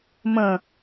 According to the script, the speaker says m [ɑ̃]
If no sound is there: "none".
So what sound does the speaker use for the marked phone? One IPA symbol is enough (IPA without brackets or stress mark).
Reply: ə̃